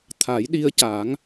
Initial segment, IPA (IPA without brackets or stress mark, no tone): t̪ʰ